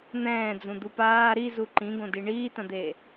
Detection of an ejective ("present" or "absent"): absent